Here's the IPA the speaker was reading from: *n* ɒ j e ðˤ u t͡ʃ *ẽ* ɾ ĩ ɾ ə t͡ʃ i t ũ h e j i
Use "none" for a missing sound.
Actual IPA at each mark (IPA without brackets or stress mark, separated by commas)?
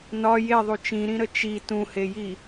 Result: n, ĩ